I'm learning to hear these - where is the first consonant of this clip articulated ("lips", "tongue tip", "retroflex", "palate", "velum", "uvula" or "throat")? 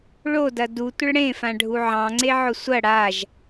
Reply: retroflex